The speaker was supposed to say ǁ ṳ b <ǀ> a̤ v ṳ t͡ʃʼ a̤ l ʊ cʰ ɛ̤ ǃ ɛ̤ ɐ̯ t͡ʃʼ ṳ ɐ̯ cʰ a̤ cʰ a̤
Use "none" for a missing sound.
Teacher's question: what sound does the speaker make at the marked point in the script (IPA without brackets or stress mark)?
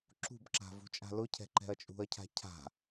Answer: ǁ